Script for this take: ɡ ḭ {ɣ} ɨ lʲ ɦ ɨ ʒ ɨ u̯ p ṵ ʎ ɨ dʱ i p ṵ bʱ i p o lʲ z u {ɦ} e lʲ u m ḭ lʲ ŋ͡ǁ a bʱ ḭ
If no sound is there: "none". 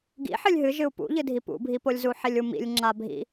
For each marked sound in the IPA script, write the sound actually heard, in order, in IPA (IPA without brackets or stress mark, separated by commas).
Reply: ħ, ħ